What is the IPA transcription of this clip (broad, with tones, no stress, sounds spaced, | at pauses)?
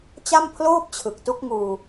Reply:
t͡ɕ a˥˩ m pʰ l oː˥˩ p̚ t͡ɕʰ ɯ˨˩ k̚ t u˦˥ k̚ ŋ uː˧